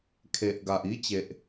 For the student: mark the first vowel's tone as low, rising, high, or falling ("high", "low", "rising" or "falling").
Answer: low